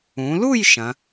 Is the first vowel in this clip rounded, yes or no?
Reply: yes